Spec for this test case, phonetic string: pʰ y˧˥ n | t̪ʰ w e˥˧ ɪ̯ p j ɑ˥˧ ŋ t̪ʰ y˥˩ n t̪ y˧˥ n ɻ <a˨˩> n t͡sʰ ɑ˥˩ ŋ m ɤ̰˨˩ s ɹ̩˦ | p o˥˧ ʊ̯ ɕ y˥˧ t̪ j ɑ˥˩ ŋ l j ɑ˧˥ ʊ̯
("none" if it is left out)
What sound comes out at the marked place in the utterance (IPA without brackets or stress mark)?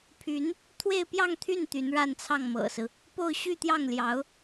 a˥˧